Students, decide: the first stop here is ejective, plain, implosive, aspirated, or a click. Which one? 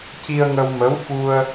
plain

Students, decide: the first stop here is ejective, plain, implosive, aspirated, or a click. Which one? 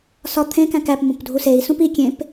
aspirated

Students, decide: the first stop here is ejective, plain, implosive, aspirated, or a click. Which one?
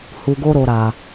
plain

